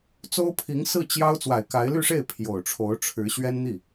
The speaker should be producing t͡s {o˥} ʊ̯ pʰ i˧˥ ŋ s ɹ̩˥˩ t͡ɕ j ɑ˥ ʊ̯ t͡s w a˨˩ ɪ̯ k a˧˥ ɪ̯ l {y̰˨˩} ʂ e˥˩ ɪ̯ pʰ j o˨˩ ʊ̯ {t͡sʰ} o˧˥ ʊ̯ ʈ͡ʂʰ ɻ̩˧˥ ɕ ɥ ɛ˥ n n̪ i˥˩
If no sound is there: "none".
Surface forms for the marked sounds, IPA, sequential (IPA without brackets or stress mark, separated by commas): o˥, y˥˧, ʈ͡ʂʰ